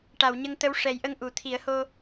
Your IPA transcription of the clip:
ʈa˨˩˨wɲə˧ŋt̪ə˧˥w ʂɛ˨˩˦jʔə˧ŋ ʔu˨˩˨ t̪ʰi˨˩˦ə̯ho˧

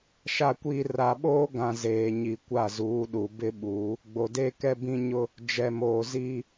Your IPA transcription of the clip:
ʃa˨kʷiː˨ ra˨ɓoː˦ɡã˨ zeː˨ɲi˨kʷa˦˨ zuː˨˦ɗu˨ bɪ˦ɓuː˨˦ | ɡ͡bo˨de˦kɛ˦bĩ˦ ɲʊ˦ | d͡ʒɛ˨moː˨ ziː˦

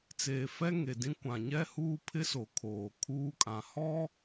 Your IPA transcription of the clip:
t͡seː˨fɛ˦ ŋe˨dĩ˦ kʷã˨ɲɛ˦huː˦ pʰɪ˦so˨ kʰoː˨kʰuː˦kʼã˨ hɔ˦

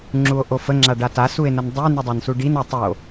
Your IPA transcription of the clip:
ŋ͡ǁuo̯ʔofə ŋ͡ǁaɖata sue̯nəndˤy nudˤansuɖin atˤo

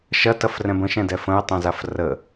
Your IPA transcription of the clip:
ʃɐtɐfrɛ̃b ə̃ʃɛ̃dɛ fə̃jtˤɛ̃zaf rə

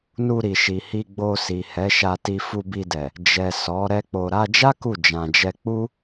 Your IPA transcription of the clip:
nu˧ɾi˨ʃi˨ hi˧ɡ͡bo˧si˨ hɛ˨˦ʃa˧ti˧ fu˧bi˧dɛ˨ | d͡ʒɛ˨ sɔ˨˦ ɾɛ˦k͡po˧ ɾa˧d͡ʒa˦ ku˦˨ d͡ʒã˨d͡ʒɛ˧ k͡pu˦

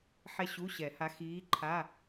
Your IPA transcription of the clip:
ħɛ˥ɕu˧˥˧ɕɛ˨˩˦ha˧˥ xiː˧˥ǃʰa˧˥˧

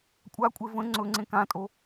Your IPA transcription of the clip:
kʷʼakʷʼe və̃ ŋ͡ǀɵŋ͡ǀẽ kãtʼo

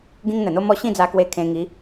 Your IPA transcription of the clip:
ɡĩ˦ŋn̪ə˨˩n̪o˦mɔ˥˧ ɕĩ˥˧d͡za˧kwe˧ kʰẽ˧ŋi˨˦

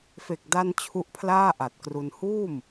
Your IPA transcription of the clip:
fe˨˩k̚da˧n t͡ɕʰu˦˥ʔpʰlaː˥˩ ʔa˨˩t̚kru˧n huː˥˩m

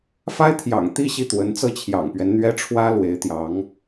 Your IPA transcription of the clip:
fa˥ɪ̯t̪ʰjɑ̰˨˩ŋ t̪i˥˧ ɕi˥˩t̪wə˧˥n t͡sɤ˥˩t͡ɕʰjɑ̰˨˩ŋpɥɛ˦n n̪ɥɛ˥ʈ͡ʂʰwä˥lwe˧˥ɪ̯ t̪jɑ˧˥ŋ

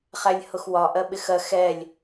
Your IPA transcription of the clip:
χælʲhʊxwɒ ʔɜɓɪxɜ xɛlʲ

